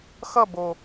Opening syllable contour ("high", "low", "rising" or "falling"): falling